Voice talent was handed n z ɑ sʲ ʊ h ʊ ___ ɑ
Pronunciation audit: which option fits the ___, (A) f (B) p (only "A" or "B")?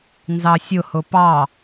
B